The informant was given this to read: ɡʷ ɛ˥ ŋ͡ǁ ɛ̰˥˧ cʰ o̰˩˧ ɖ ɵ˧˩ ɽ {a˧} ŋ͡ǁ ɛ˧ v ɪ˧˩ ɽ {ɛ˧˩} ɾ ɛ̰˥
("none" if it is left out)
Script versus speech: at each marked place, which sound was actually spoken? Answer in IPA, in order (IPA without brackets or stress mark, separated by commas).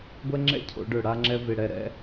a˧, ɛ˧˩